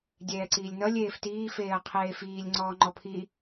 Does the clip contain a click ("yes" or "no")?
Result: yes